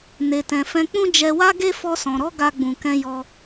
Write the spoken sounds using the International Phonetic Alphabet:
ne˨tɛ̃˨fɛ̃˧k͡pũ˦ d͡ʒɛ˧wa˦ɡe˦ fɔ˧sɔ̃˨ɾɔ˨˦ ɡa˧ɡ͡bũ˨kɛ̃˧ jɔ˧

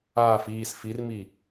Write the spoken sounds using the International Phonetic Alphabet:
aːf iːs firmi

